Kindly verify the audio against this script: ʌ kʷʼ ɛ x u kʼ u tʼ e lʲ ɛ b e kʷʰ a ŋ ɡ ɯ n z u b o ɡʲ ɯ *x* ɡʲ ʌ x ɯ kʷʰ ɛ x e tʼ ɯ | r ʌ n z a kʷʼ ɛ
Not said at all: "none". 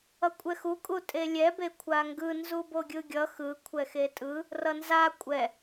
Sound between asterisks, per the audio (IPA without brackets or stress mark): none